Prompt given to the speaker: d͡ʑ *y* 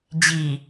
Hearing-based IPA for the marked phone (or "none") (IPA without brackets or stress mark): i